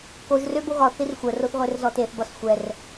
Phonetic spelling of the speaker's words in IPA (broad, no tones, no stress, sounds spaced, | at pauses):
k o ʒ r ø b o ɣ ɒ θ i r xʷ ə r o θ ʁʷ e r z ɔ t e θ b ɒ s xʷ ɛ r